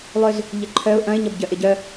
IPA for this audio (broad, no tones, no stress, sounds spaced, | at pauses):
lˠ ʏ z | ʎ ɪ ǃʰ œ ʊ̯ ʔ ɐ̃ ɪ̯ ɲ ɐ b ɟ œ ʔ ɪ ɟ œ